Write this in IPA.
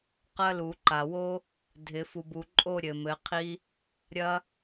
q ɐ˦˥ l u˨˩˦ ǃ a˨ w o˦˥ | dʱ ɪ˨˩˦ f u˨ b u˨ ǃʼ o˥˧ ɾʲ ɘ˨ m ɘ˨˥ qʰ i˦˥ | ɾʲ ɐ˦˥

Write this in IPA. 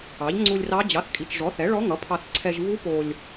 ɑ˩˥ ʎ ŋ͡ǀ u˧ lʲ r ɑ˧˥ d͡ʑ ɑ˩˥ θ kʼ i˩˥ t͡ʃ ʐ ɔ˩˥ θ ɛ˩˥ ɭ ɔ˧˥ ŋ ʌ˩˥ pʰ ɑ˧ θ ǀʰ ɛ˧ ʒ v u˧˥ p o˧ lʲ

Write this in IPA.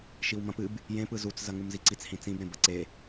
ʃ i w m ɐ̃ p ɨ b | j ẽ p ɯ z u t͡s z ɐ ŋ u m z i ǀ i t͡s h ĩ t͡s ĩ b ɾ ẽ b ɐ ǀ e

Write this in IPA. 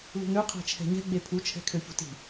l ṳ ŋ ø qʰ ɛ̤ t͡ʃʰ ɛ̤ ɲ ɛ̤ ɡ͡b e pʰ u t͡ʃʰ ɛ̤ kʰ ø ç ṳ t i̤

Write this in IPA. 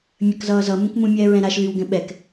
mʲ ɐ k z ʌː z ʌ m ũ k m ũ mʲ ɛː ɹ ɛ̃ ɾ a ʃ l y w ɡ ɛ̃ ɓ ɛ k

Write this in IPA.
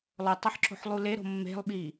lˠ o tˤ ʌ ħ ǁ o̤ ħ lˠ u l e ɾ o̤ mː e̤ lˠ ɓ iː

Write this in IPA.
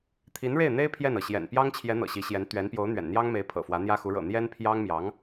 t̪ʰ i˧˥ n ɻ e˥˩ ɪ̯ n̪ e˥ ɪ̯ pʰ j ɛ˥˩ n ɤ˩ ɕ j ɛ̰˨˩ n p j ɑ˥ ŋ t͡ɕʰ j ɛ˧˥ n̪ ɤ̰˨˩ ɕ i˧˥ ɕ j ɛ˧˥ n t̪ ɥ ɛ˧˥ n p j o˧˥ ʊ̯ n̪ ɥ ɛ̰˨˩ n n̪ j ɑ˥ ŋ m e˧˥ ɪ̯ pʰ ɤ̰˨˩ f w ä˧˥ n̪ j ä˥ x u˧˥ ɻ ɤ̰˨˩ n̪ j ɛ˥ n pʰ j ɑ˥ ŋ m j ɑ˧˥ ŋ

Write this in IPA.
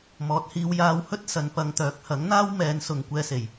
m ɔː˨˥ t̚ h iː˨˧ w j aː˧ w h ɵ˥ t̚ s ɐ˨˧ n p ɐ˨˧ ŋ t̪ œː˨˥ k̚ h ɐ˨˥ ŋ n̪ aː˥ w m ɛː˨˧ n s ʊ˨ ŋ kʷ ɛː˧ s e˨˩ j

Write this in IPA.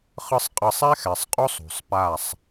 χ ɯ˦ sˤ qʼ ɤ˦ sˤ ɛ˦ x ɛ˨ sˤ qʼ o˦ sˤ ṳ˨ sˤ p a˦˨ sˤ

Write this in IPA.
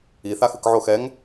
i θ a x ɯ k ʕ o x ɛ ŋ

